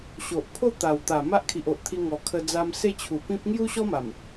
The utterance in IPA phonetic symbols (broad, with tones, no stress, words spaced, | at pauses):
ɕo˨ʔpʰo˥˧t̪a˨˩wt̪a˨˩ ma˦ʔkʰi˨ʔo˨ʔt̪ʰi˧ ŋɔ˨˩kʰə˧d͡za˧m se˥˧t͡ɕʰu˨˩pĩ˦p̚ ŋju˦ɕɔ˦ma˨˩m